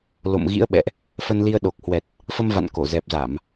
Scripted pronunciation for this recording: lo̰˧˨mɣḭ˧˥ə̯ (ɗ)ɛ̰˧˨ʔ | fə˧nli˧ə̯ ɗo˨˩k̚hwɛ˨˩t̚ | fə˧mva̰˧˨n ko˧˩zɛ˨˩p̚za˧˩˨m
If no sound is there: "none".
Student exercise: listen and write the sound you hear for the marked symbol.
ɓ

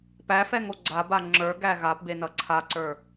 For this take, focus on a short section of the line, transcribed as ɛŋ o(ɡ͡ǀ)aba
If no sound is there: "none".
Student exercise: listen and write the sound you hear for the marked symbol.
ɡ͡ǀ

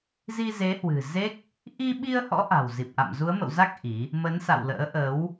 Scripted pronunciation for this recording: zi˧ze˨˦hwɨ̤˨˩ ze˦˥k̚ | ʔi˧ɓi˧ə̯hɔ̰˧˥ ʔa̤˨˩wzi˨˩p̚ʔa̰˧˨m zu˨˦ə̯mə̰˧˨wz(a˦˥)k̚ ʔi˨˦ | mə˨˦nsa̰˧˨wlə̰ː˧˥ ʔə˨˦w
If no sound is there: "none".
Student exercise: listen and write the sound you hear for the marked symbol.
a˦˥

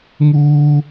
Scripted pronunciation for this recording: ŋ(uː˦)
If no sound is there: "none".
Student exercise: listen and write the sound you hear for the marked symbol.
uː˦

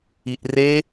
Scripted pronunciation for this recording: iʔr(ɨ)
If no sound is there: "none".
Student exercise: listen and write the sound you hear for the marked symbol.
e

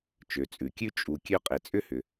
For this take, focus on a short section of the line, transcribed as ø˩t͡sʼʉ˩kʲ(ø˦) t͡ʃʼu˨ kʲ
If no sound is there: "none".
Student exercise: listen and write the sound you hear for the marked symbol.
ʉ˦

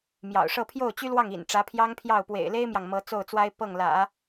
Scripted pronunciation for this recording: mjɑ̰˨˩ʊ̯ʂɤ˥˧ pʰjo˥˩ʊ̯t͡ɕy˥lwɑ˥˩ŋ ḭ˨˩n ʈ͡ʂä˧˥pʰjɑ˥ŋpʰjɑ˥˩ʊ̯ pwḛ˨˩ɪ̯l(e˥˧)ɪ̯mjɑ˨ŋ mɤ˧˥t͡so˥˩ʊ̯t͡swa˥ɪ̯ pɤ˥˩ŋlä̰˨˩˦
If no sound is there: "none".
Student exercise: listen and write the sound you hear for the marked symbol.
e˥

